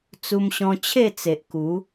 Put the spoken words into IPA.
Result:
t͡s u˧ m ɕ ɔ̃˧ t͡ɕʰ e˥˧ t͡s e˨ ʔ k u˨˦

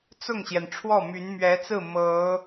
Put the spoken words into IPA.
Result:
t͡s ʊ˥˩ ŋ ɕ j ɛ˩ n ʈ͡ʂʰ w ɔ˥˩ m y˧˥ n m ɥ ɛ˧˥ t͡s ɹ̩˥˩ m ɤ˧˥

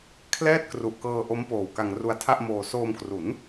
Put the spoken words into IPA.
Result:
kʰ l ɛː˥˩ t̚ k r u˨˩ ʔ k ɤː˧ ʔ o˦˥ m p oː˨˩ w k a˧ ŋ r u˧ a̯ tʰ a˥˩ ʔ m oː˧ s oː˧ m k r u˩˦ n

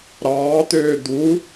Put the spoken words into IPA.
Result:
ɾ ɑː t̪ øː d̪ u

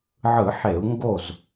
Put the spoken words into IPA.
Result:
ʕ ɯ˧˩˧ ħ e˧˩˧ u̯ ŋ ɡ o˥˩ z

